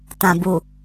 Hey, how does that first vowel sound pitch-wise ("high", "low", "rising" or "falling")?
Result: low